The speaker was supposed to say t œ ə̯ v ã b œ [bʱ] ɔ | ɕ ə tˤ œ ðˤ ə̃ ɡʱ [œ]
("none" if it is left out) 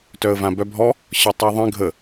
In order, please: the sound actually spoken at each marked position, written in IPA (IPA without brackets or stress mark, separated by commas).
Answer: bʱ, ə